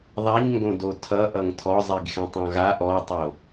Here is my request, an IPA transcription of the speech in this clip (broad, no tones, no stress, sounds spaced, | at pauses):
ðˤ a ɲ ŋ ɡ õ d o tʰ ʌ ʔ ʌ ŋ tʰ ɔ zˤ i ɡ x ɛ̃ tˤ ɔ̃ ɣ a ʔ ɔ tˤ o